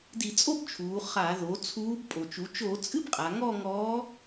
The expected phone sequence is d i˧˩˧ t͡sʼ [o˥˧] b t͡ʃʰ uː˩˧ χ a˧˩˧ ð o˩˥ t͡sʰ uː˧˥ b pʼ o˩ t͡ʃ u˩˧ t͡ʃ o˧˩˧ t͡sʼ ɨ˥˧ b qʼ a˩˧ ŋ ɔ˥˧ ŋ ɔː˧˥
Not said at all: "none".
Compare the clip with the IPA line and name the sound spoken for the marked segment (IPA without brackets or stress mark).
o˥˧